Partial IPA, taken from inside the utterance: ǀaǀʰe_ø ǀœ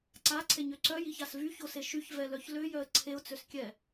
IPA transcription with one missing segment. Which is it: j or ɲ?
ɲ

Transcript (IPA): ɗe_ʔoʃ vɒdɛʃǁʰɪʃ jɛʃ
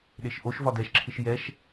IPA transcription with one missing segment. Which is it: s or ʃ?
ʃ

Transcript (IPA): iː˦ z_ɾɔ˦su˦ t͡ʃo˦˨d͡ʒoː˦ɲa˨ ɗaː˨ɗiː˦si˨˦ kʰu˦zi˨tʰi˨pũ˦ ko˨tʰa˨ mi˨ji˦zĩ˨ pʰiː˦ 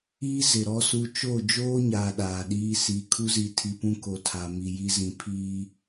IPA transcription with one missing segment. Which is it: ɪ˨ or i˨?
ɪ˨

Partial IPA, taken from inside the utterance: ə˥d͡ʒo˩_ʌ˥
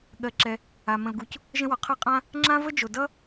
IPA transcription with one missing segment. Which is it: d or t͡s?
d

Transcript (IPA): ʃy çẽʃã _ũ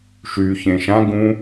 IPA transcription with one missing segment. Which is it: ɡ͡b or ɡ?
ɡ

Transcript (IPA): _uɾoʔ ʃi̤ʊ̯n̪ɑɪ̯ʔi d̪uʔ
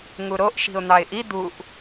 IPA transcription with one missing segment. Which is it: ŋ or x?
ŋ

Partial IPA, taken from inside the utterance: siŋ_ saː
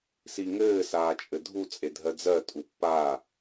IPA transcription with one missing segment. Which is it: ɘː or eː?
ɘː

